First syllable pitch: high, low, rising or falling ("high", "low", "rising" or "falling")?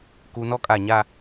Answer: low